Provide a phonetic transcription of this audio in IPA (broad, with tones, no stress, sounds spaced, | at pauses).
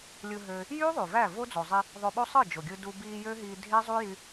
lʲ ɯ˧ ɦ ø˧ | j yː˦ ðˤ y˨ v æ˦˨ v o˦ d͡z o˨ zˤ i˧ | ðˤ o˧ ɓ o˦ sˤ ɯ˦˨ d͡ʒ o˨ ɡʲ ɯ˧ d u˧ b iː˧ j ø˦ ɦ iː˧ dʱ e˦ zˤ u˦ j y˧